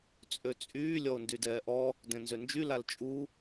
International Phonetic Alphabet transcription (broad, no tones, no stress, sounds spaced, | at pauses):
t͡sʼ ø t͡sʼ yː lʲ ɔ o̯ n d y d ɛː ʔ ɔ | d ɛ̃ n z ø n d͡ʒ y l a l t͡ʃʼ u